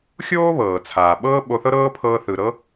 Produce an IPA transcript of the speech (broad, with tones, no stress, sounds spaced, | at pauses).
xʲ oː˥ β ɤː˩ t͡sʰ aː˩ ɓ ɤː˥ ɓ o˧ θ ɤ˥ ɾ ɤː˥ pʰ ɤː˧ θ ɯ˩ ɾ ɤ˥